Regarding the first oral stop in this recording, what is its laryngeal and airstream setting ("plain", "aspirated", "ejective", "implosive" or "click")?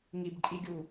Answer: plain